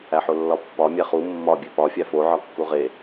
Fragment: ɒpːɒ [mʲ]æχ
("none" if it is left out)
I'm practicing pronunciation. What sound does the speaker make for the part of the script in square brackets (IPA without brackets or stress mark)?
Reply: mʲ